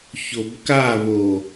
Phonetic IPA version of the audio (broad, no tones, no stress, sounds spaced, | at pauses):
ç o b k a β o